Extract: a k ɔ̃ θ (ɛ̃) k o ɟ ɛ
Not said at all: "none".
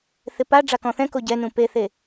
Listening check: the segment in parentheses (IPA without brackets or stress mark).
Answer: ɛ̃